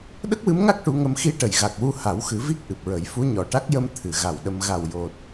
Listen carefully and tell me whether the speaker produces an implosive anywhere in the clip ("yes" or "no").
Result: yes